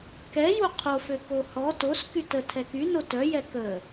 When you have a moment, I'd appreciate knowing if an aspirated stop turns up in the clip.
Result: yes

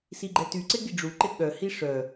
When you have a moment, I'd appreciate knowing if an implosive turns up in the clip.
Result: yes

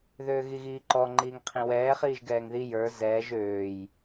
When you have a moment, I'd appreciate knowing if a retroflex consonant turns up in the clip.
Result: no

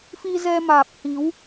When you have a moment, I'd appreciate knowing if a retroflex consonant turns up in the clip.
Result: no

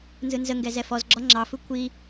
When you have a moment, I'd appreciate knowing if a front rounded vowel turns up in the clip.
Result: no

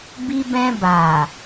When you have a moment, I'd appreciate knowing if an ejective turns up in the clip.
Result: no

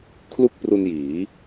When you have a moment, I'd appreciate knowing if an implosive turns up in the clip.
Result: no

